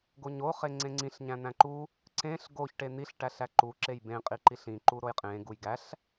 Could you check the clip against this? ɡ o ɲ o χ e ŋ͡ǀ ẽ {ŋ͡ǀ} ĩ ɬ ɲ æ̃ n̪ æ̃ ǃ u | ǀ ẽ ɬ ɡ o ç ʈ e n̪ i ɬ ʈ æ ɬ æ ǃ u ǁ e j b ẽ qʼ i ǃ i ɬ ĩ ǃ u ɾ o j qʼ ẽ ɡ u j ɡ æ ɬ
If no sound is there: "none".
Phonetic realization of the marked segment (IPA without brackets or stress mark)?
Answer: ŋ͡ǀ